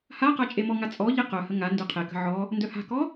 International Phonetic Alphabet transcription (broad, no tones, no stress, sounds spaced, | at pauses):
h a q a t͡ʃʼ e m ɔ ŋ a t͡sʼ ɔ ʎ e q œ h ə ŋ a n d ø qʰ e k ə̤ ʕ ɔ | n d œ h a̤ k ɔ